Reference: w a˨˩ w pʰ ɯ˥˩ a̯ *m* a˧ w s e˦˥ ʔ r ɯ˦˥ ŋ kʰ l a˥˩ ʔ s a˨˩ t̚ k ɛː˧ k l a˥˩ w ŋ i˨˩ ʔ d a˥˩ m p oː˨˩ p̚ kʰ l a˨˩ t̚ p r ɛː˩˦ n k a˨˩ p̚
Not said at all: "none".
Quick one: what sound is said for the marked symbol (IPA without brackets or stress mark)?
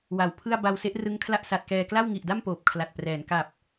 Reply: b